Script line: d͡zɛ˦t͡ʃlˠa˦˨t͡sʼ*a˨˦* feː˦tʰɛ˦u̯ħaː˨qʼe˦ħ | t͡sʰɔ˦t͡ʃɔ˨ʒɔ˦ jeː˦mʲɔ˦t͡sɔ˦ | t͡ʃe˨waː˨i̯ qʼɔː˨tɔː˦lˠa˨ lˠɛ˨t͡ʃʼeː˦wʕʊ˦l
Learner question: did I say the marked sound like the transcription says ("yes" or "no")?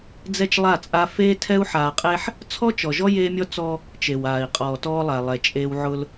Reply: no